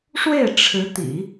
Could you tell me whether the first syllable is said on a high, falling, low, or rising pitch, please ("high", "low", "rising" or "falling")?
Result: falling